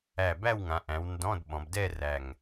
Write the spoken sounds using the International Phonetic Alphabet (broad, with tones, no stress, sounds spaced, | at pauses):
æ˧˩ b æ˥˧ w ŋ ã˩˧ ʔ æ̃˩˧ w n d ɔ̃˧˥˧ d ɓ ɔ̃˩˧ b d ɛ˥˧ r æ˧˩ ŋ